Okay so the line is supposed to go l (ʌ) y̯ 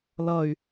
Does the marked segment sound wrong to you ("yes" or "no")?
no